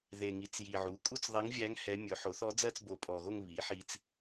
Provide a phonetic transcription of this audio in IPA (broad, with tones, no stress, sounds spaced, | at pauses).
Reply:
ð e˨˩ ŋ i˩˥ t͡s j i˨˩ ʕ u˩˥ kʼ u˥˧ t͡s ðˤ e˧˥ ŋ vʲ æ˧˥ ŋ h ɛ˧˥ mʲ ɵ˩˥ ħ o˩˥ θ ɔ˧˥ d͡z ɜ˥˧ t͡s b o˨˩ pʼ ɔ˨˩ ɣ o˥˧ ŋ β i˩˥ ħ i˧ t͡s